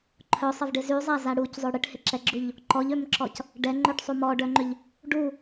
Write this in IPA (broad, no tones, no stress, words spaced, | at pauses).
ǃʰœsˤɪvɖɪ zyzˤaza ɽuczˤø ɽɪʈhɪǁɛɡ͡ǁuʎ | ǃɔʎømǁɔc | ɖɛŋ͡ǃœʈsˤu mɔɖœŋ͡ǃʏʎ | ɖu